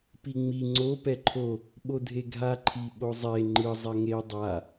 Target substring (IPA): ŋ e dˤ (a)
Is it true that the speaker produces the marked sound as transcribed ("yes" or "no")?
yes